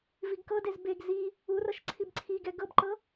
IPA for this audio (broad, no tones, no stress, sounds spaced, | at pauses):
v i ɡ k ɤ d e z b e ɡ z i | u r ɤ ʃ ǀʰ i b ǀʰ i ɡ ɛ ɡ ɤ b ǃ ɤ